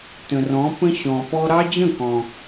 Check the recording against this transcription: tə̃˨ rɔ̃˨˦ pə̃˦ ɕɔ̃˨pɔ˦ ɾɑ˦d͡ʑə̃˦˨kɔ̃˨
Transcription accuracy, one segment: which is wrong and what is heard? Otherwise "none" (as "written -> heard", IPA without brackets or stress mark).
none